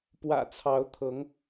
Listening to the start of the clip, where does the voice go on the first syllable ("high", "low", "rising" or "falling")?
low